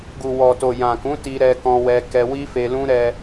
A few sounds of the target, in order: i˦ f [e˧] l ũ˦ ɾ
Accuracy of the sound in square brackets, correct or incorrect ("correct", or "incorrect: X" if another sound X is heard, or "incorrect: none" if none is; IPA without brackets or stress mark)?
correct